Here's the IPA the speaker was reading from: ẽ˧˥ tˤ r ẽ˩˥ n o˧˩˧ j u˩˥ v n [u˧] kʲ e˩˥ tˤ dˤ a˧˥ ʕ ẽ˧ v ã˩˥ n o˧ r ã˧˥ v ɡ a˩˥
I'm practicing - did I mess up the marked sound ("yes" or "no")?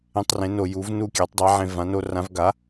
yes